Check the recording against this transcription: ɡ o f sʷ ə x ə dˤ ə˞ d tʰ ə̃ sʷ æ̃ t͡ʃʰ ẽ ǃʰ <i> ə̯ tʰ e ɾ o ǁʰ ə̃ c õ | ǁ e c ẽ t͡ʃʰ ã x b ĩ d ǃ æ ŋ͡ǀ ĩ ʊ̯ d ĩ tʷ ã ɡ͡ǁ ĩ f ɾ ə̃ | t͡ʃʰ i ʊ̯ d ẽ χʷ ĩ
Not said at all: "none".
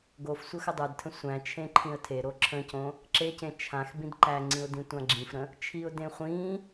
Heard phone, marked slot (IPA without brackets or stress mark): ĩ